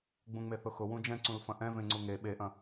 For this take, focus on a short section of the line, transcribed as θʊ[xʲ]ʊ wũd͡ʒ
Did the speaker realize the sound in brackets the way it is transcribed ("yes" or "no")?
no